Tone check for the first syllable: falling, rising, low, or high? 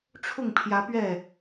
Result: falling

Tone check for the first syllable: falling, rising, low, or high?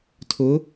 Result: rising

